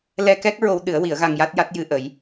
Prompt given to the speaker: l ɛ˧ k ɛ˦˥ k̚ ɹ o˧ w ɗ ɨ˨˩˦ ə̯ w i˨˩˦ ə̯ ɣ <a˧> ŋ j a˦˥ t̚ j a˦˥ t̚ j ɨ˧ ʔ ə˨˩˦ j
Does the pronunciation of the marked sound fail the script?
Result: no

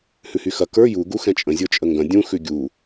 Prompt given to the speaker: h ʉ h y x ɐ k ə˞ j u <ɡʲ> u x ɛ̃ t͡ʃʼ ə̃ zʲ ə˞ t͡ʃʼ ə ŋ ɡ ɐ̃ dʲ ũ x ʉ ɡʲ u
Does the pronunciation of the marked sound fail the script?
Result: yes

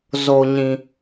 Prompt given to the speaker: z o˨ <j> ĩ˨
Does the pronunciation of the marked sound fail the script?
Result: yes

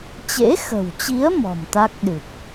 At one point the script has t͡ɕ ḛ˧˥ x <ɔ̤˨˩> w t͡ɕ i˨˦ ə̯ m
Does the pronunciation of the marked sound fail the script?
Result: yes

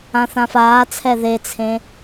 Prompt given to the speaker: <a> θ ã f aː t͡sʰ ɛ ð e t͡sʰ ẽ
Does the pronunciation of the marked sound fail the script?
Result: yes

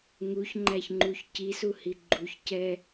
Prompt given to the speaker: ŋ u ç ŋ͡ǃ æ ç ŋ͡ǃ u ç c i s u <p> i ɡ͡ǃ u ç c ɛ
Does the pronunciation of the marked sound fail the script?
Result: yes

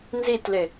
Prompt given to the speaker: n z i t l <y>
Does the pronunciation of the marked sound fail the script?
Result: yes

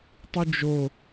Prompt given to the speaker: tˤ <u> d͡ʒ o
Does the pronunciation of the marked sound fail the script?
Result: no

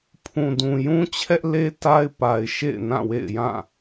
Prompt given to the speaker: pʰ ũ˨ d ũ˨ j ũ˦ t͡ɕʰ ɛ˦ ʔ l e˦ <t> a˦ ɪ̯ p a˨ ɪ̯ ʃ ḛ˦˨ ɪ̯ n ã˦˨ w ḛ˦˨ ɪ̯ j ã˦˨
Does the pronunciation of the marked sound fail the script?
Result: no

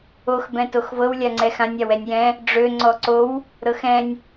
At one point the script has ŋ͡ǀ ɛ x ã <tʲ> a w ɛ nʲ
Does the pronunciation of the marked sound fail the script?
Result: yes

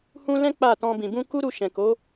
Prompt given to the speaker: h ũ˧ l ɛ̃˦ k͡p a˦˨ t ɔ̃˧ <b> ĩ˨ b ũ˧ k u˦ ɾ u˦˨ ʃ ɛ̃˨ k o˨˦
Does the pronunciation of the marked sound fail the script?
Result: no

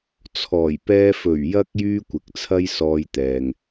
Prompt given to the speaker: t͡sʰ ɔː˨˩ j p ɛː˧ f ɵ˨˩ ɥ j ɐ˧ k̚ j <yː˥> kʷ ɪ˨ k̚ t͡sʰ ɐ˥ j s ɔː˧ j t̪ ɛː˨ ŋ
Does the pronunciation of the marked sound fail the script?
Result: no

